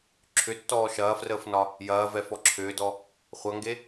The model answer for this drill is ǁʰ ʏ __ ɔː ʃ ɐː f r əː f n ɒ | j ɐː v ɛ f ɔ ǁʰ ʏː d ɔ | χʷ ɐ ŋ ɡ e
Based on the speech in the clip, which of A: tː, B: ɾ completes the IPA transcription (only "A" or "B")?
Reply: A